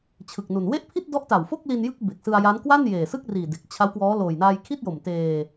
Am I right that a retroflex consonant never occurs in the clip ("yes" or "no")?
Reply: yes